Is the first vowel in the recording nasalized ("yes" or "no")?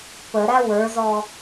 no